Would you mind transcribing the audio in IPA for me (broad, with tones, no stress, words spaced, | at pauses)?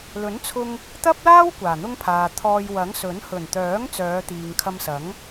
lɵ˨˥nt͡sʰʊ˧ŋ | t̪ɐ˥p̚laː˥w kʷaː˨˩n̪ʊ˥ŋpʰaː˨t̪ʰɔː˧j wɐ˨˥ŋsɵ˨˥n hɵ˨˩nt̪œː˨˥ŋ t͡sœː˨˧t̪iː˨ŋkʰɐ˧msɐ˨˥ŋ